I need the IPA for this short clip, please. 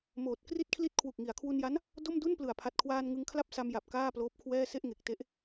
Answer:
moː˨˩t̚ kri˥˩t̚kʰli˥˩t̚ kʰwu˨˩k̚ŋi˩˦a̯kʰwu˧nja˦˥n | do˥˩mdu˥˩nplɯ˨˩a̯ pʰa˨˩t̚kʰwaː˧n ŋɯ˧ŋkʰla˥˩p̚sa˧mja˨˩p̚ kaː˥˩ploː˦˥p̚kʰwɛː˥˩ se˥˩ʔŋe˨˩k̚te˦˥ʔ

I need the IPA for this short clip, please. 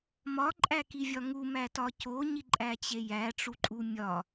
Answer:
mɒǃʼækivʲɒ ŋumætɒ coɲiǃʼæt͡ɕe jæʈ͡ʂuǃʼu mʲɒ

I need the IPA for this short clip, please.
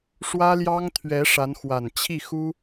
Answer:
ʂwä˥ljɑ˥ŋt̪ʰɥɛ˧˥ ʂa˧˥nxwa˨˩n t͡ɕʰi˥˩xu˥

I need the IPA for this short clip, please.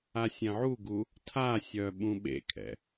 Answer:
asʲɛ̃ʕuɡu | tʰasʲœ ɓũɓḛkʰɛ̰

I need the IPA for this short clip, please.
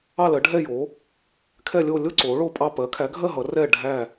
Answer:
ɑ˥˧lɜ˨˥ ɖʱɛ˥˧jo˨˥ | kʰɛ˥˧lʲo˥˧ lʲo˥˧ ǀoː˨˥ɭoː˥˧pʼɑ˥˧ pɜ˨˥kʰæ˨˥ɡʱɜ˥˧ ɦʌ˨˥rɛː˥˧ ɖʱæ˥˧

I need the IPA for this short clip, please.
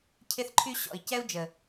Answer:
cʰɪ˦θǃʰy˦ ɕɔ̰˨i̯cɛ˦u̯d͡ʒə˨

